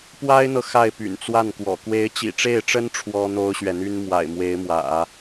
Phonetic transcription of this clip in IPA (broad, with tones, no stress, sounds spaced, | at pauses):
p w a˥ ɪ̯ n̪ ɤ˨ x a˥˩ ɪ̯ p y̰˨˩ n t͡s w a˥˩ n k w ɔ̰˨˩ k w e˧˥ ɪ̯ t͡ɕ ḭ˨˩ ʈ͡ʂ e˥˩ ɪ̯ ʈ͡ʂ ə˥ n ʈ͡ʂʰ w ɔ˥ n̪ o˥ ʊ̯ ɕ ɥ ɛ˨ n̪ y˥ n m w a̰˨˩ ɪ̯ m w e˧˥ ɪ̯ m w ä̰˨˩˦